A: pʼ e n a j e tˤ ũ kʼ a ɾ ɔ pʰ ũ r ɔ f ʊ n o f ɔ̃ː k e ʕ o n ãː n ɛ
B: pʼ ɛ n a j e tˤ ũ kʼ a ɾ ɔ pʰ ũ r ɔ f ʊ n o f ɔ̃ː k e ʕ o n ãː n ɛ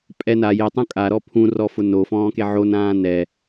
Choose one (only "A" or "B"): B